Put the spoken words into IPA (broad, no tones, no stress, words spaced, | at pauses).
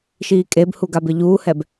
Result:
ʃiːkʼebhu ɡabɪʎuːhɛb